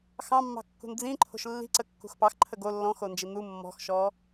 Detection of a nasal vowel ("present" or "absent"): present